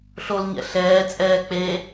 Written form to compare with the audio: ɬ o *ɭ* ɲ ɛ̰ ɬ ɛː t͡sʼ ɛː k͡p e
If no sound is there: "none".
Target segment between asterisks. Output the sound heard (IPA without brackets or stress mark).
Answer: l